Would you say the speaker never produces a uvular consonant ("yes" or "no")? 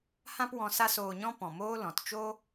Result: yes